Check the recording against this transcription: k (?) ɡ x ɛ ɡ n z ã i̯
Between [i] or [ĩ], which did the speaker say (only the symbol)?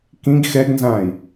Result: ĩ